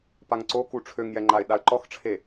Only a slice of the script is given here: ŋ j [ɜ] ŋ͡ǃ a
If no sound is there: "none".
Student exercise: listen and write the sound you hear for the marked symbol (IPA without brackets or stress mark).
ɛ